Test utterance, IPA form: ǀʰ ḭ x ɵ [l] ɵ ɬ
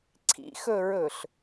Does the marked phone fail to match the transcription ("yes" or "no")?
yes